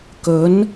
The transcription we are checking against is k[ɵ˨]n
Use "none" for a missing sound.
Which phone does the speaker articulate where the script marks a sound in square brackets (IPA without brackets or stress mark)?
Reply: ɵ˨˥